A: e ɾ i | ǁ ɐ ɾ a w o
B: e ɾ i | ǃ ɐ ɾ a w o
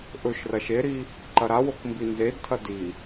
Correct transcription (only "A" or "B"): B